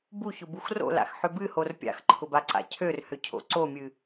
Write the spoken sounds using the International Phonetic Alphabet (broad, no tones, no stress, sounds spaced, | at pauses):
b u ç ʊ b u x r o̰ l a̰ x ħ ʏ b ɨ h o r pʲ a̰ x ǃʰ ʊ b a ǀ a̰ cʰ ø r h ʏ cʰ o̰ ǀ o mʲ ɨ